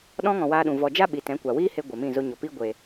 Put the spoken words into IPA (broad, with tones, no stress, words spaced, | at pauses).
ɗɔ̃˧ŋɔ̃˨ waː˧ɗũ˨ vɔ˨d͡ʒa˦ɓi˨ tɛ̃˨˦kʷa˨wiː˦he˧ ɡʷɛ˨mĩ˦˨ zo˧ɲɔ˨piː˦ ɡʷe˨